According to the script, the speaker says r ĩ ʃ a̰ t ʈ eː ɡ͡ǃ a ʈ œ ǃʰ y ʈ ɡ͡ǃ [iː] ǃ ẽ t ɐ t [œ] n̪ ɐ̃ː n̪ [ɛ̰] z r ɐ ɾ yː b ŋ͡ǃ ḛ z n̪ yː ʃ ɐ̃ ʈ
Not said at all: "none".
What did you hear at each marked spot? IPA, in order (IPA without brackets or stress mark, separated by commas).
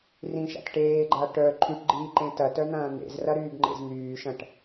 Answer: iː, œ, ḛ